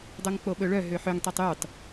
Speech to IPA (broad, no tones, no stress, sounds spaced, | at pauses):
dˤ œ ŋ k͡p o ɓ ɵ ɭ œ ɦ ø ħ ø ŋ tˤ ø tˤ y tˤ